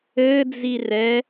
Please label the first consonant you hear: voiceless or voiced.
voiced